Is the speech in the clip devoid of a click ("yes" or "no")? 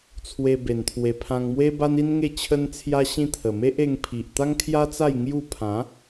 yes